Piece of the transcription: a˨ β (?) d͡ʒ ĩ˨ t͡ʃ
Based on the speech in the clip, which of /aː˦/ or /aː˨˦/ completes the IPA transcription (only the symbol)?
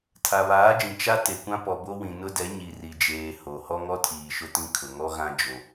aː˨˦